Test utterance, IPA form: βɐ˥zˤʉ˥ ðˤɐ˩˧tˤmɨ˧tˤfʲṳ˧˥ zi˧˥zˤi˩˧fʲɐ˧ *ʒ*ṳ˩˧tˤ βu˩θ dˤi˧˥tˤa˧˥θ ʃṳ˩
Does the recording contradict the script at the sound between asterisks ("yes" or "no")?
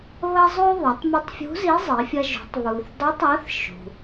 no